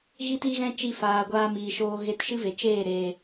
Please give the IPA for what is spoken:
ɣ i˦ t i˦ ɣ ɛ̃˦ t͡ʃ i˧ f aː˨ ɡʷ aː˧ m iː˨ ʃ oː˧ ɣ e˧ t ʃ ɨ˦ v e˨ t͡ʃ eː˦˨ ɾ eː˨

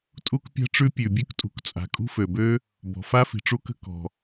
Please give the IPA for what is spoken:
tʼ u˥ k pʲ a̤˥ ʈ͡ʂ ʉ˥ pʲ ʉ˩ bʲ ʉ˥ k tʼ ṳ˩ k t͡sʼ a̤˩ kʼ ṳ˥ f ø˩ b ø˥ | b ɔ̤˩ f a˥ f i̤˩ ʈ͡ʂ u˥ k ə̤˥ k ɔ̤˩

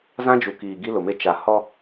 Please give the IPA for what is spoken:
z ã˦ d͡ʒ u˨ k iː˨ ɡ i˦ l ʊ˨ m e˦ t͡ʃ a˨ h ɔ˦

